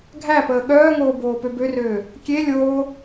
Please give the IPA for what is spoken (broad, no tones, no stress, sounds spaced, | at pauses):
ɡʱ æ p əː ɠ œː ŋ oː b oː p ø b ø r øː | kʲ e lʲ oː